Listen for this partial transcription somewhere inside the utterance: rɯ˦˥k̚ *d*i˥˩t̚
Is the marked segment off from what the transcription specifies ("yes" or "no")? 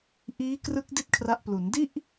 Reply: no